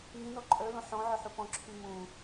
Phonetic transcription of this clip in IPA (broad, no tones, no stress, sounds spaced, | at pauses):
ŋ ĩ n ɔ ǃʼ œ l õ ħ ɔ̃ ʕ œ ħ u p ɔ̃ ǁʰ y m ũ